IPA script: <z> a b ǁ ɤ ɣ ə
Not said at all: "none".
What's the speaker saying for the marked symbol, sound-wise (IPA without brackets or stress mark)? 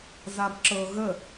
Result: z